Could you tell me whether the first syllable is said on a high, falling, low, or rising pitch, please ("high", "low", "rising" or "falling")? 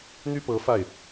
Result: high